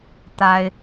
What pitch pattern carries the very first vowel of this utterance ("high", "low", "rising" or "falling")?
high